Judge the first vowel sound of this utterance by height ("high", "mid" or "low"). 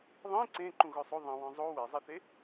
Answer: high